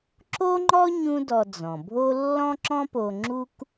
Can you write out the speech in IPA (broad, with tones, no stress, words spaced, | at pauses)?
ǁo˥ŋ͡ǃɔ˥ ɲũ˥dɔ˧d͡zɔ̃˩bʱo˥ lːɔ̃˥ǁɔ̃˥po˧ŋ͡ǁu˥k